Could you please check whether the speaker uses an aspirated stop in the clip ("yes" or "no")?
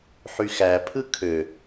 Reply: yes